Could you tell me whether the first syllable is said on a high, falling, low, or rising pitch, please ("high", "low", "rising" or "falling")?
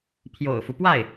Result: low